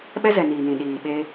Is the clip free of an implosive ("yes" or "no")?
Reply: no